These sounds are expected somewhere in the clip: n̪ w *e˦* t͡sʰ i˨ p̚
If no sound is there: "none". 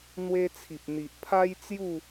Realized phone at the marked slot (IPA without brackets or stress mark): e˧